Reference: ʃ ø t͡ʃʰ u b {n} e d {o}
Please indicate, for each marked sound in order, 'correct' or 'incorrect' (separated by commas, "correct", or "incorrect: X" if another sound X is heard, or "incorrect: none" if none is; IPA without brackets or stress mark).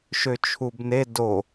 correct, correct